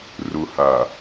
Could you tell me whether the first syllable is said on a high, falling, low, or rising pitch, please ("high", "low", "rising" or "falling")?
low